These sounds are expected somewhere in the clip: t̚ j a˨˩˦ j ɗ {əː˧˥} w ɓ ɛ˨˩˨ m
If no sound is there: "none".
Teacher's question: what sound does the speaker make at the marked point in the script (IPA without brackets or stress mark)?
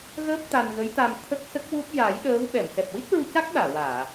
əː˧˥